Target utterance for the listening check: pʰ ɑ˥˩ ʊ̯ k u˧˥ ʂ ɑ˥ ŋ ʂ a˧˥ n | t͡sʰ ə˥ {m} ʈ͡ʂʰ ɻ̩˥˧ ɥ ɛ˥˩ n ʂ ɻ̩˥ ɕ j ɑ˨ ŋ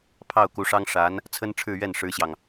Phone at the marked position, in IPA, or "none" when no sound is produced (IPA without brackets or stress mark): n